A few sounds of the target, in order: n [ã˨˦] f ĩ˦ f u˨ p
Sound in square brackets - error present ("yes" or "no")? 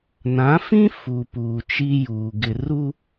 no